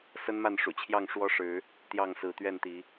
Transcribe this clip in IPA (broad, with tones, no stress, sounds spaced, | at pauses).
s ə˦ n m a˥˨ n ʂ ṵ˨˩ t͡ɕʰ j ɑ˥˨ ŋ ʂ w ɔ˦ ʂ ɻ̩˨˦ | t̪ j ɑ˥˨ ŋ s ɹ̩˨˦ t̪ ɥ ɛ˥˨ n t̪ i˨˦